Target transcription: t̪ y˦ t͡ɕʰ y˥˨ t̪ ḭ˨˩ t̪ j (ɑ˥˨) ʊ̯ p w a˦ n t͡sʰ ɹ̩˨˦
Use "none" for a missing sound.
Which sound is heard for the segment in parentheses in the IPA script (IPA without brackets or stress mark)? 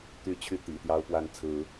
ɑ˦